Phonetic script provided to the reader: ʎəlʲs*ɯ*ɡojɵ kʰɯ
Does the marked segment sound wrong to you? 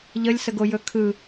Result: yes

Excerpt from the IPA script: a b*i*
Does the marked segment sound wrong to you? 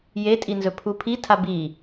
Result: no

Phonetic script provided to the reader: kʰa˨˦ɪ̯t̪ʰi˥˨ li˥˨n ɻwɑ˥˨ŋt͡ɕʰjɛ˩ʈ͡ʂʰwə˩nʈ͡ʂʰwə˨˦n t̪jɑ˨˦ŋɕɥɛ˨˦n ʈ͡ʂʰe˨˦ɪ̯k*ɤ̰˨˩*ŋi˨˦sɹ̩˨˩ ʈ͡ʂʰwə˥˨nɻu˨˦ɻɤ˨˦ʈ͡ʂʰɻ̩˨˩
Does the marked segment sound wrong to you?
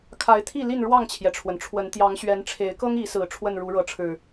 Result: yes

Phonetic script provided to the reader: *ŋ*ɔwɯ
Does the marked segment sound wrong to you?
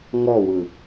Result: no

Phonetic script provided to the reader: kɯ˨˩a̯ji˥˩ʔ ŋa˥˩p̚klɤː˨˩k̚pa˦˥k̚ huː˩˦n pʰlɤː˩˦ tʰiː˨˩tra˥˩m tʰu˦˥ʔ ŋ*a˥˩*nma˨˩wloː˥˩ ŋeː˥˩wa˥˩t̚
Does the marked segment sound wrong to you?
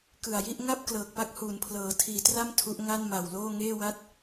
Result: no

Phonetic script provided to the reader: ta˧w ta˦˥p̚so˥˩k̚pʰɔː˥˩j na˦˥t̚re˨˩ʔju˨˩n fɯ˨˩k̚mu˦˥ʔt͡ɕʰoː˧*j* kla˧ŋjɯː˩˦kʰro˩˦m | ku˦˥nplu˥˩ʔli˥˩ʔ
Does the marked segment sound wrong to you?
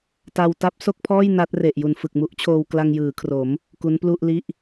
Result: yes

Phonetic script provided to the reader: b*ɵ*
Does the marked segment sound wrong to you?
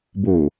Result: yes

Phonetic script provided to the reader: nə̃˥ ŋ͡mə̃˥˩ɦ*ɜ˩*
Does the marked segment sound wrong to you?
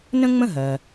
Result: no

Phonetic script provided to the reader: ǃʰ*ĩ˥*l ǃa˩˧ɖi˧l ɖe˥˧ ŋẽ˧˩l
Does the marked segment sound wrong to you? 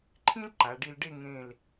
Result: no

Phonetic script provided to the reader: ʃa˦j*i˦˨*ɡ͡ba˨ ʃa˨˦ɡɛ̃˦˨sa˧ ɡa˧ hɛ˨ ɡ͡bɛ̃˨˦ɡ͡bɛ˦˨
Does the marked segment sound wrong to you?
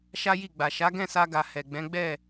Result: no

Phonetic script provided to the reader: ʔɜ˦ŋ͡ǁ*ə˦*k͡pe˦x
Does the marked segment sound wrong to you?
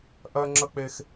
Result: no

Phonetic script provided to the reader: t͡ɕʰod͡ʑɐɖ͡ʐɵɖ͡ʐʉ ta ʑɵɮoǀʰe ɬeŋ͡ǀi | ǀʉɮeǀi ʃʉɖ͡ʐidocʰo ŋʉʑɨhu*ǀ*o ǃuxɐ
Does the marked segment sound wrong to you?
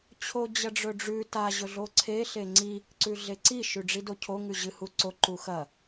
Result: no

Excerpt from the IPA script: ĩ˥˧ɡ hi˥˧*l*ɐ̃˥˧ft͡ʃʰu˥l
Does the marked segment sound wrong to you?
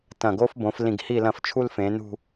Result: no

